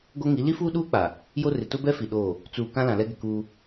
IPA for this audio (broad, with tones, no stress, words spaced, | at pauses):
ɡo˦ŋi˨˦ li˦fuː˦ ɗuː˦k͡pa˨ | jo˦rɪ˨ tʊ˦bɛ˦ fi˨ɗoː˦˨ | t͡suː˨ kã˦lã˨lɛ˦ɡɪ˨ kuː˦